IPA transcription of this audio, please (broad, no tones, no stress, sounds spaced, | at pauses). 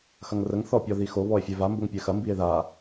x ɐ ŋ r ə ŋ θ ɔ pʲ ɔ ð i x o β ɔ e̯ fʲ ɛ v a m b ə ŋ pʲ ɛ x ɐ m b i e̯ ð a